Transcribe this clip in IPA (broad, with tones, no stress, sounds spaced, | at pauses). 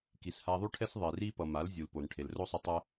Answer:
k i˨ s h a˧ ðˤ u˦ ʈʰ ɛ˦ s ðˤ e˨ r i˦ p ʌ˨ m a˨˦ l zʲ u˨ l p o˨ n ʈʰ e˨ l r o˦ sˤ u˧ tˤ ɛ˦